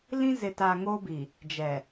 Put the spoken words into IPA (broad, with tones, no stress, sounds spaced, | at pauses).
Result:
l ĩ˦ z ɪ˨ t a˨ ŋ o˦ b i˨ | d͡ʒ ɛ˨